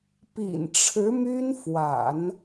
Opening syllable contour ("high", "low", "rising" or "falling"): low